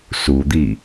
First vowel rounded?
yes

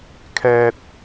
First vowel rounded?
no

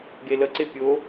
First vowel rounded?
no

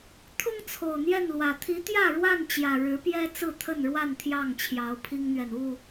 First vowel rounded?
yes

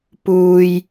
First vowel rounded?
yes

